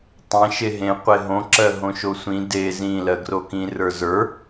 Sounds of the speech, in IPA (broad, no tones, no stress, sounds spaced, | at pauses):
tˤ ẽ ʃ e ɦ ẽ qʷ e ɦ õ ǁ ɜ ɦ õ ʃ o sʷ ĩ d e z ĩ l ɜ ɡ r o k ĩ r ə˞ z ə˞